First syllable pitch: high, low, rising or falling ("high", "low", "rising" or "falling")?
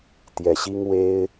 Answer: low